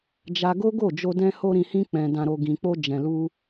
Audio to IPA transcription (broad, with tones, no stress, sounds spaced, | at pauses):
d͡ʒ a˧ ɡ o˦ ɡ o˦˨ d͡ʒ o˧ d ɛ̃˦ h o˦ ɾ ĩ˧ h ĩ˦ k͡p ɛ̃˧ d ã˧ ɾ o˧ ɡ ĩ˨ k͡p o˧ d͡ʒ ɛ̃˨ l u˧